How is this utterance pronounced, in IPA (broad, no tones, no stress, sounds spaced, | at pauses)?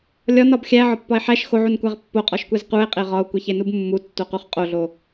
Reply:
lʲ ɒ n ɒ b xʲ æ ʕ ɒ pː ɒ e̯ ħ æ ʃ x o ʕ u n kʷ æ ʁ pː o qʼ ɒ ʃ kʷ e z q u e̯ qʼ e ʁ ɒ o̯ kʷ e ç e n u b mː u tː o q u χ qʼ o ɮ o